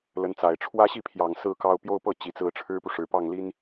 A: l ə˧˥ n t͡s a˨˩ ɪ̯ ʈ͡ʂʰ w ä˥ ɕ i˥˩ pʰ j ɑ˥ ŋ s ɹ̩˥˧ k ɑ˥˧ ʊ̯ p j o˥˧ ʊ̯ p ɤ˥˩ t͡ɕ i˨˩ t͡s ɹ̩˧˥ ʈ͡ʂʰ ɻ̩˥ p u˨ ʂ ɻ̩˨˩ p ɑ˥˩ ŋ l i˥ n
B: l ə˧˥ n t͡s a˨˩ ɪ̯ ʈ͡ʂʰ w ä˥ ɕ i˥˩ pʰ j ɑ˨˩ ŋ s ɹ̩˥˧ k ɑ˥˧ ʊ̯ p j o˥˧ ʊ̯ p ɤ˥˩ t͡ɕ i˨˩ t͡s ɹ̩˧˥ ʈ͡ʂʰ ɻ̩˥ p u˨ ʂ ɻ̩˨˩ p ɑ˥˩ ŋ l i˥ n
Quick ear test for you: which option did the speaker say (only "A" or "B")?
B